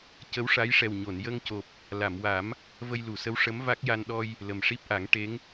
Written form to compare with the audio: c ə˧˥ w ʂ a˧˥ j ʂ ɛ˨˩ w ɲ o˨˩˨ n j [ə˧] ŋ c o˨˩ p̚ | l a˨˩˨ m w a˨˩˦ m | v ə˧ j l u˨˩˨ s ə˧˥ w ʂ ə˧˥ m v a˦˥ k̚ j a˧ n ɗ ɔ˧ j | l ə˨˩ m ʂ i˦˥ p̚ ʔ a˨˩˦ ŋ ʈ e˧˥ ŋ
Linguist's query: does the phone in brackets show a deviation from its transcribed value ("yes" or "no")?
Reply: no